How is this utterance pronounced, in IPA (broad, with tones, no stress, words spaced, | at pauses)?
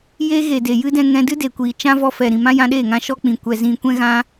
je˦ ɣe˨de˨jɨ˦dɛ̃˧ ŋɛ̃˧dɨ˦de˨kʷiː˨ t͡ʃã˦vɔ˧fɛ˨ ɾĩ˨mã˦jã˧ɗeː˦˨ ŋã˦ʃɔ˦k͡pĩ˨ kʷɛ˨zĩ˨ kʷɛ̃˦ɣã˦